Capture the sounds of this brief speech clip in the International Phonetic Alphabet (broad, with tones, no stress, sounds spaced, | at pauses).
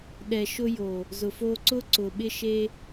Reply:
ɗ ɛ˨ ʃ ʊ˧ j o˨ | z ʊ˨ f oː˧ ǀ ʊː˦ ǀ ʊː˨ ɓ ɪ˧ ʃ e˧